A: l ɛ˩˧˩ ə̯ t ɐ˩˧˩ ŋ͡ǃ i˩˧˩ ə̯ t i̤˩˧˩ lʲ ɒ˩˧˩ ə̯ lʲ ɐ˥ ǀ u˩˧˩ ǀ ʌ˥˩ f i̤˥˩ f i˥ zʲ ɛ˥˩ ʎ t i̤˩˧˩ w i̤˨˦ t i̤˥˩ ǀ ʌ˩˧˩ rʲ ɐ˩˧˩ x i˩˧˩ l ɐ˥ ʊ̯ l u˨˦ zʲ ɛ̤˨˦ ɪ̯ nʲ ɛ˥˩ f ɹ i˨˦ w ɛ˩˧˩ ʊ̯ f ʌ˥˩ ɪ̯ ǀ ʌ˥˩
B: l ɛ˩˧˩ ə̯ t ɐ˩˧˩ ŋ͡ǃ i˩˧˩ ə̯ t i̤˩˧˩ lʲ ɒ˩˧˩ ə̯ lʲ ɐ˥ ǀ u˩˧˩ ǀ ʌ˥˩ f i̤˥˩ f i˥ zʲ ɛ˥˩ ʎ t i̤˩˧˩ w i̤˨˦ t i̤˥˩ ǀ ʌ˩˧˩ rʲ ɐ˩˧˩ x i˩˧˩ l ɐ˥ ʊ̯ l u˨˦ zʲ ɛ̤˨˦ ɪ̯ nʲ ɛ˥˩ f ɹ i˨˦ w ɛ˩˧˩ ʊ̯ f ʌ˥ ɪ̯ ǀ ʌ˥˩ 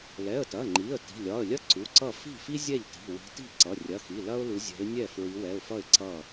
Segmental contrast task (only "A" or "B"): A